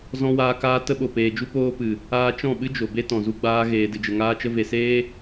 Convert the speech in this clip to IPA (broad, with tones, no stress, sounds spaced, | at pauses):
z ɔ̃˧ w aː˧ k aː˧ t ə˧ ɓ o˨ p eː˨ d͡ʒ u˧ p oː˧ p ɨ˨ | aː˧ t͡ʃ ɔ̃˦˨ ɓ ɨ˦ d͡ʒ o˨ b e˦ t ɔ̃˨ z u˧ ɡ͡b aː˧ ɣ eː˨ d ɨ˨ d͡ʒ ə˨ ŋ aː˧ t͡ʃ ə˧ v e˨ s eː˦